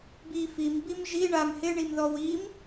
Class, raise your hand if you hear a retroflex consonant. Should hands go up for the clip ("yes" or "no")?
yes